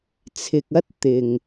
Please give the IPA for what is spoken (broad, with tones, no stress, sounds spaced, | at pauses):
t͡sʰ ɪ˨ k̚ ɐ˥ t̚ t̪ ɪ˨ ŋ